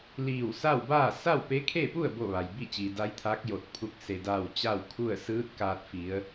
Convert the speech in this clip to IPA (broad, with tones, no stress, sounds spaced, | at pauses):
l iː˧˩ w s a˥˨ w b aː˥˨ s a˥˨ w p e˧˥ kʰ e˥˨ p u˥˨ ə̯ b o˥˨ ʋ a˩ j b i˥˨ t͡ɕ iː˩ d a˧˥ j t̪ʰ aː˧˥ k̚ j o˧˩ t̚ pʰ u˧˥ k̚ s e˩ d aː˧˩ w t͡ɕ a˥˨ w kʰ u˥˨ ə̯ s ɯː˧˥ t̚ k aː˧ t̚ f i˩˧ ə̯